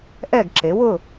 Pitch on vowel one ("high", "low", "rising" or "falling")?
falling